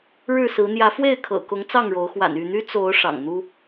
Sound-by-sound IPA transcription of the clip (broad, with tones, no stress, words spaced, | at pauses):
ɻɻ̩˥˨sɹ̩˨˦ n̪jä˨˦fwe˥˨ɪ̯kʰɤ̰˨˩kʊ˨˦ŋ t͡sɑ˥˨ŋɻo˨˦ʊ̯ xwa̰˨˩ny˥˨n̪y˦ t͡so˨˦ʊ̯ ʂɑ̰˨˩ŋn̪u˦